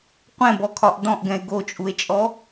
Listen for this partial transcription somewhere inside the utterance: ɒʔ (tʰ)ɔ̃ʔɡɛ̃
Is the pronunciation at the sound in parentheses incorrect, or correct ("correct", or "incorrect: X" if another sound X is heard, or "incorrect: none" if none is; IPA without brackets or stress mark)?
incorrect: d